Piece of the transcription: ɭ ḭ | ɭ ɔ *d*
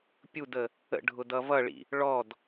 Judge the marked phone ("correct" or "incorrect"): correct